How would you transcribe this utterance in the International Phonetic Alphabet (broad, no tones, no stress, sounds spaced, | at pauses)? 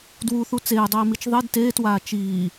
d w u θ u t͡s eː dˤ iː m i t͡ʃ ðˤ i d t eː t w aː t͡ʃ iː